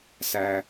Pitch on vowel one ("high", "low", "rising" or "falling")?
low